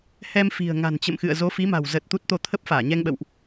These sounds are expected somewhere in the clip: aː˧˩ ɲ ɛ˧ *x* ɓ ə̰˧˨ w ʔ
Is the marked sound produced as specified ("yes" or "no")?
no